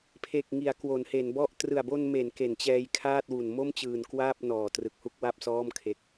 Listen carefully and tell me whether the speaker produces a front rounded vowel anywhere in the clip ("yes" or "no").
no